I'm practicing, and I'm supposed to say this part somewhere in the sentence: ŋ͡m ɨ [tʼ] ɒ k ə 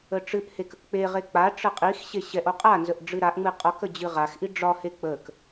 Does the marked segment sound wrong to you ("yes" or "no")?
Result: yes